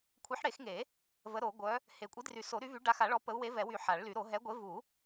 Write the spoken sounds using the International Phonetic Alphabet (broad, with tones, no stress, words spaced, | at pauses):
kʷʰɛ˨˥ħɽe˨˩˦xŋe˨˩˦ | və˨˥ɾo˨˩˦ɡʷœ˨˥ | he˨˩˦ kʷʼi˨˥dry˨˩˦so˨˩˦ ɾy˨˥vy˨˥ ɖa˨˥xa˨˩˦ɭɔ˨˥ pə˨˥u̯we˨˥vɛ˨˩˦wy˨˩˦ ħa˨˩˦ɭly˨˩˦ɾo˨˩˦ ɦɛ˨˥ɡʷe˨˥ vu˨˩˦